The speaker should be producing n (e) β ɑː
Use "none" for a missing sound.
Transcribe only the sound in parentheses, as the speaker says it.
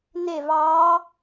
e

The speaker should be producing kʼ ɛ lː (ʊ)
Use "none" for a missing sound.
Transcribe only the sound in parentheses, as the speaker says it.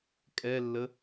ə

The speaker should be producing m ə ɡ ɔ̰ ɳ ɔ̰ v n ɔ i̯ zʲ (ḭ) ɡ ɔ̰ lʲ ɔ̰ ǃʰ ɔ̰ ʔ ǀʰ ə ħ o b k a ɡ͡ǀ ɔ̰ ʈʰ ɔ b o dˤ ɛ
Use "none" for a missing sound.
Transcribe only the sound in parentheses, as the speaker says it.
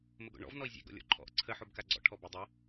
ḛ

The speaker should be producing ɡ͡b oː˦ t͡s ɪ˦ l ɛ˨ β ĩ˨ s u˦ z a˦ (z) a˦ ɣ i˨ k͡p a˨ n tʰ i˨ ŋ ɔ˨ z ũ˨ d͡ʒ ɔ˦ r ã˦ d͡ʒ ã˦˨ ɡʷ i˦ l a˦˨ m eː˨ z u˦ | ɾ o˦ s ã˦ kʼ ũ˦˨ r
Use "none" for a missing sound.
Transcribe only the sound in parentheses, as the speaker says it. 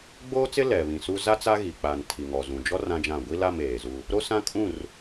t͡s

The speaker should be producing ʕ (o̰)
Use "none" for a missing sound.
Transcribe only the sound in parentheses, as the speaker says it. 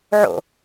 o̰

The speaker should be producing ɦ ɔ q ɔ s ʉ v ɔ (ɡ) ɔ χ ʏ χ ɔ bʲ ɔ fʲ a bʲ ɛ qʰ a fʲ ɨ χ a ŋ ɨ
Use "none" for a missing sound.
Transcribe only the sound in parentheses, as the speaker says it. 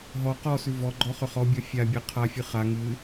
ɡ͡ǃ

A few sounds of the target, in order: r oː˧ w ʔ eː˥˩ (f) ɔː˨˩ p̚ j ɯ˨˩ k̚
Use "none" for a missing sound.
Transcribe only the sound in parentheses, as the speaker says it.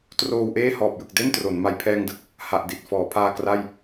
h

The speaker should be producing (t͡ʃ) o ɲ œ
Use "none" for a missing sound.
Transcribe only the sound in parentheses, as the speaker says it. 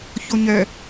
ç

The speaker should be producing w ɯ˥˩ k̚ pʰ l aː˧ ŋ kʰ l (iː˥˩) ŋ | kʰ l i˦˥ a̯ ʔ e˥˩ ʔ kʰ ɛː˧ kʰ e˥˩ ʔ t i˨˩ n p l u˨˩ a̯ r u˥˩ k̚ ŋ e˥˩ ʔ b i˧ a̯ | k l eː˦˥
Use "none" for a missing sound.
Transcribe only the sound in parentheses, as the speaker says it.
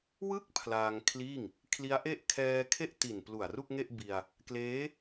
iː˥˩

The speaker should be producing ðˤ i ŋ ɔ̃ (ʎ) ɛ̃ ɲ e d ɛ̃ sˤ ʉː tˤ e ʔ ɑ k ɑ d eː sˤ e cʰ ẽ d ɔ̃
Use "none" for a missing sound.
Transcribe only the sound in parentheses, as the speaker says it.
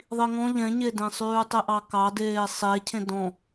ʎ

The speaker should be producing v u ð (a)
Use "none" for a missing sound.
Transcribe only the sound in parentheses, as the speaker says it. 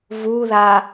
a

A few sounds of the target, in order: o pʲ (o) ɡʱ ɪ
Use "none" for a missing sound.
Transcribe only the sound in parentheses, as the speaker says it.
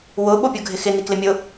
o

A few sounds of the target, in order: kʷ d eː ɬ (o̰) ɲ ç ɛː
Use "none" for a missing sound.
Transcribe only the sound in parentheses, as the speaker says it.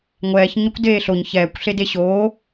o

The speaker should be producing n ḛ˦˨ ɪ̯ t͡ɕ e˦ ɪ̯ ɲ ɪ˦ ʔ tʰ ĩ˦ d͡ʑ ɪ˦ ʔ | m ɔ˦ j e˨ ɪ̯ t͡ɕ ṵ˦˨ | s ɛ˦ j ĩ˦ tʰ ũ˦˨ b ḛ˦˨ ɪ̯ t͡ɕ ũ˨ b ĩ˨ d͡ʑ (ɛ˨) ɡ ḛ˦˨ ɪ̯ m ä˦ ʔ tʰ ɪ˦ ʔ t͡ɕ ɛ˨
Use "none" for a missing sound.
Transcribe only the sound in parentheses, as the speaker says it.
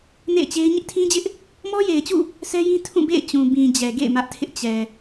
ɛ˨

